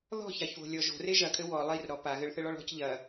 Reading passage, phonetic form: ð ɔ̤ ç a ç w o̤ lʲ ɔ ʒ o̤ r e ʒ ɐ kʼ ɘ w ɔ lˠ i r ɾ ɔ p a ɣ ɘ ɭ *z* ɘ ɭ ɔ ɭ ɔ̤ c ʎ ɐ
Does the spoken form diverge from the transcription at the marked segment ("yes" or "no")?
yes